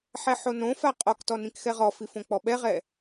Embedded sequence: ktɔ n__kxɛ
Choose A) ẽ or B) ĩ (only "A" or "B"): B